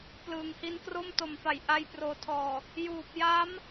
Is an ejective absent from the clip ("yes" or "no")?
yes